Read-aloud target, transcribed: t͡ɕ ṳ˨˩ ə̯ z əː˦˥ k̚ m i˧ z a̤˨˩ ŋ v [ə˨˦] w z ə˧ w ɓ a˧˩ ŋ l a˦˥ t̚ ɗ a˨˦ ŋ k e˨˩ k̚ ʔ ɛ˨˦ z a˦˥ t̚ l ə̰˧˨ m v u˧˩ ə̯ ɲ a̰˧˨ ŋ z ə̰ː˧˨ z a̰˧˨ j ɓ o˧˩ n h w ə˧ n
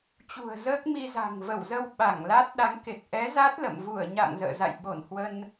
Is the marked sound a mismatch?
yes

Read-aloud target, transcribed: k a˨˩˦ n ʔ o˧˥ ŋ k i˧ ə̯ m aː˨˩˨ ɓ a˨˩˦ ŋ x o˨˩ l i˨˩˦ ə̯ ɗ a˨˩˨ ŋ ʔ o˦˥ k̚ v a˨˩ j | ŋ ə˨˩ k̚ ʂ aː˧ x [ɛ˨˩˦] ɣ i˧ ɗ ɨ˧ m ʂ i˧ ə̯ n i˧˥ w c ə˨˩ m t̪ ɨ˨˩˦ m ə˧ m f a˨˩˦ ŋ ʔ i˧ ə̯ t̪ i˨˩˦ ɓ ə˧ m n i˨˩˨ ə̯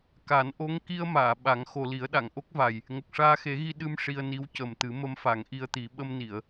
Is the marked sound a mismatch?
yes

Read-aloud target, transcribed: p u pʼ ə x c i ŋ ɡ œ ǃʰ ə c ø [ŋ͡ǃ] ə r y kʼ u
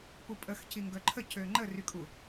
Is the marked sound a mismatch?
no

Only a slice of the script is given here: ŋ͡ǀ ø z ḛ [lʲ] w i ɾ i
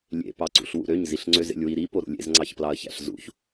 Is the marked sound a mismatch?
no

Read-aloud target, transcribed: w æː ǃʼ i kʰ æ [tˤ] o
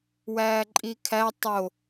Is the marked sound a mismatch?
no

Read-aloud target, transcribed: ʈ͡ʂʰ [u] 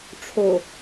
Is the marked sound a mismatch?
yes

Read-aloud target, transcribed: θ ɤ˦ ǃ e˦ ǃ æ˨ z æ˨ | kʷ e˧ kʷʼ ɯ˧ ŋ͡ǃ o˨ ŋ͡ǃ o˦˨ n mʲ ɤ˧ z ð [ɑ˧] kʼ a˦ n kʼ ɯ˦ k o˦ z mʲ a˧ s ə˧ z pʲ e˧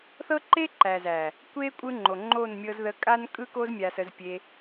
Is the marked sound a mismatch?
yes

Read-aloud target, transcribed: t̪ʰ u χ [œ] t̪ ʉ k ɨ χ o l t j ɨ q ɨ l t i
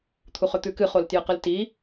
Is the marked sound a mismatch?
yes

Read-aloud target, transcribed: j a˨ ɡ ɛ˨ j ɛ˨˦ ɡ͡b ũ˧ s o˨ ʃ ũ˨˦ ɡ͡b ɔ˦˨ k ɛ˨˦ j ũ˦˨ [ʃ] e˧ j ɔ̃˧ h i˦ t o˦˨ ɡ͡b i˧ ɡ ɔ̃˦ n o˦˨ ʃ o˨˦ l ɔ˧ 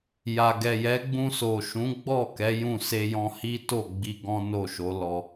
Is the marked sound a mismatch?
yes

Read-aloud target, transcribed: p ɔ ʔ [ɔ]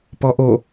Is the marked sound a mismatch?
yes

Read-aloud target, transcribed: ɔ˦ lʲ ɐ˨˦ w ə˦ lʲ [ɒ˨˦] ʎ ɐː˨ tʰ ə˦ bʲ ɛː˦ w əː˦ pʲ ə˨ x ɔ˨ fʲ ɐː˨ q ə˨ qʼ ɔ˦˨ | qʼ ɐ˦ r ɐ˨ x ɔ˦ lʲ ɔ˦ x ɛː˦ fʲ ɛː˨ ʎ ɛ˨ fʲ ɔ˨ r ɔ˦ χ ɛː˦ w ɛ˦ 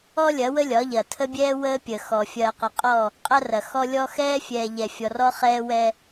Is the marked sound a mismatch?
no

